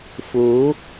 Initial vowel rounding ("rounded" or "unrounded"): rounded